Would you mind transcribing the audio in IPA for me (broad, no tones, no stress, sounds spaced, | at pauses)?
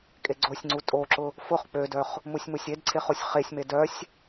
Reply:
kʼ e ɡ͡ǀ o sʲ ŋ͡ǀ u tʼ o ǁ ʊ | f ʊ χ k͡p ø d œ χ | m u sʲ m u sʲ e d ǀʰ e χ o sʲ χ e sʲ m e d œ sʲ